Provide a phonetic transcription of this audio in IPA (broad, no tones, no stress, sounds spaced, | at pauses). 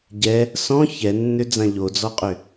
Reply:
ɟ ɛ | s ɔ̃ ç ɛ nː ø d͡z ã ʎ o d͡z ɔ qʼ ʏ